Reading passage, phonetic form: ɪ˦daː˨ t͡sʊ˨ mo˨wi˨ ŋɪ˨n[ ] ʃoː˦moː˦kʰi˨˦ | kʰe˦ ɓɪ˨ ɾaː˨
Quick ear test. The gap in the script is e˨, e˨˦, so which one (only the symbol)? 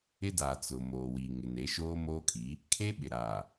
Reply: e˨˦